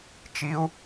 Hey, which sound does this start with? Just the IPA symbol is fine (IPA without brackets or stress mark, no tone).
t͡ʃ